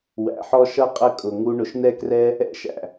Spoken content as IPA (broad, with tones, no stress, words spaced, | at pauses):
wæ̰˧ħɔ˦ ʃʌ˦qʼə˦˨kʼʊ˨ ŋu˧ ɳʊ˨ʃnɛ˦krɛ˦ | ɛ̰˦ʃæ̰˨